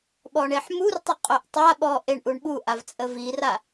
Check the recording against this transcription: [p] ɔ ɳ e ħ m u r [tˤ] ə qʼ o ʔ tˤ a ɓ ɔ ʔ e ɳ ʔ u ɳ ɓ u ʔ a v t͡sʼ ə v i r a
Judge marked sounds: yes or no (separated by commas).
no, yes